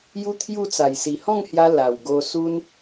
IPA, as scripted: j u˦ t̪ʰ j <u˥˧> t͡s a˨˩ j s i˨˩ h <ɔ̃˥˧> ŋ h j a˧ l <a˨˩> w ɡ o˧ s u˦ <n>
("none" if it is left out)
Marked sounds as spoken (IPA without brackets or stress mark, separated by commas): u˥˧, ɔ̃˥˧, a˨˩, n